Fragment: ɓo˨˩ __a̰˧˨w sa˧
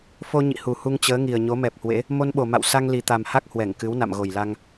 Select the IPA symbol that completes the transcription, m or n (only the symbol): m